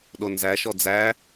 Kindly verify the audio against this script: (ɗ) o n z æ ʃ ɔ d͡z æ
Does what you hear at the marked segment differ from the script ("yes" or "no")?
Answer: no